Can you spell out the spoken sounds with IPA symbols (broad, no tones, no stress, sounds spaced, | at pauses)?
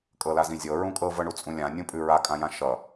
kʼ ɤ l a z ĩ zʲ ɤ ɹ ũ kʼ ɤ v ɤ ɳ u t͡sʼ ũ lʲ ã nʲ ũ pʼ ʉ ɹ a kʼ ã j ã ʃ ʌ